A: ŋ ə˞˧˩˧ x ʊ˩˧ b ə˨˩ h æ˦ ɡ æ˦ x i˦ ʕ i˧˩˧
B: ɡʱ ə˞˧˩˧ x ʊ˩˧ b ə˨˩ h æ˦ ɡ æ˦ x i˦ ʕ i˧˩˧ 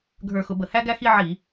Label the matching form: B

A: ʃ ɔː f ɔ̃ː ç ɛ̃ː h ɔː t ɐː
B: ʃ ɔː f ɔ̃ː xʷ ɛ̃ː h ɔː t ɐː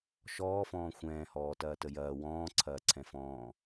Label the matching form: B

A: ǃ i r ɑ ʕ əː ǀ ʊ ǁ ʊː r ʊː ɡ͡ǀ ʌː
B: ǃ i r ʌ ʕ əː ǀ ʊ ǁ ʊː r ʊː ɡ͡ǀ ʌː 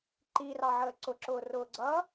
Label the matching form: A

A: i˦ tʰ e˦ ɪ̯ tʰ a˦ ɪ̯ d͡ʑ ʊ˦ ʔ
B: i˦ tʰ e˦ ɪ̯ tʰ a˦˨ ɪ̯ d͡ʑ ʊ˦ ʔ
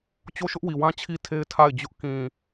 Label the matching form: B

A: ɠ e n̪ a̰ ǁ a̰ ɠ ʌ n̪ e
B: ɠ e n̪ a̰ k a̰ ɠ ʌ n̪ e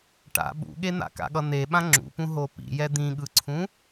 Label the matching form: B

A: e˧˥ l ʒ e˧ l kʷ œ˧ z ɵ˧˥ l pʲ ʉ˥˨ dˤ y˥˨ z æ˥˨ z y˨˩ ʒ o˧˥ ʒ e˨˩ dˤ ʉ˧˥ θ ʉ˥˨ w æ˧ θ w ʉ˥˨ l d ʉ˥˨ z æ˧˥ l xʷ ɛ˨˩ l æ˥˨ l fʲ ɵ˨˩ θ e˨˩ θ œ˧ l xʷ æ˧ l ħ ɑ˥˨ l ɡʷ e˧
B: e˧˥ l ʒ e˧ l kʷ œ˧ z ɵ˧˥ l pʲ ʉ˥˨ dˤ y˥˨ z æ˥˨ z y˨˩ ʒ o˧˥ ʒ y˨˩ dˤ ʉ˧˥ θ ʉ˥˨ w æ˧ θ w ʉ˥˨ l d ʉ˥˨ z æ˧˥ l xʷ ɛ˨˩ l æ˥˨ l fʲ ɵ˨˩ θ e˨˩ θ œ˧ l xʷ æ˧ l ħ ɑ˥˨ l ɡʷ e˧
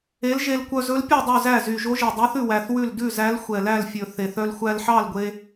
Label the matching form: A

